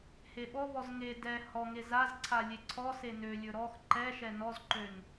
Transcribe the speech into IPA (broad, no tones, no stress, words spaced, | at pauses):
heɓɔvɔz ŋe dɛ hɔŋe zazǀʰa lʲeǀʰɔse nølʲɵ ɾɔx ǃɛʃɛ nɔzǃøn